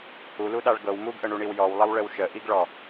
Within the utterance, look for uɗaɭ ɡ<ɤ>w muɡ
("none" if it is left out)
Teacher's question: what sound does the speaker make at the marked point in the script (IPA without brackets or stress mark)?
ɤ